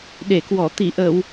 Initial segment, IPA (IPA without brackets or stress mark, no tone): ɗ